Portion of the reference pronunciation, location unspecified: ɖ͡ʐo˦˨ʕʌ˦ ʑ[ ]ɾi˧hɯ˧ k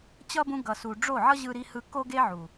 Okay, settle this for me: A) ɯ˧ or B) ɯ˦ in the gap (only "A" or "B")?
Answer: A